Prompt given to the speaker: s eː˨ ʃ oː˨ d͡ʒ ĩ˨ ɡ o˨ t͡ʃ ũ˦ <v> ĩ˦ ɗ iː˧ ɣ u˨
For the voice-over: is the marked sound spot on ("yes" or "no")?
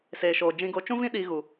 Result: yes